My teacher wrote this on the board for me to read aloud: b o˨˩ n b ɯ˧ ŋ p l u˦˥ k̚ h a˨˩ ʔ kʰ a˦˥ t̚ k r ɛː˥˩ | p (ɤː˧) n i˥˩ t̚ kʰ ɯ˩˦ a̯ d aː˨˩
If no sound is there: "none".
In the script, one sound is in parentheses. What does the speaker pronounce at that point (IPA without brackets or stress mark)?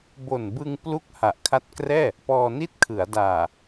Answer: ɔː˧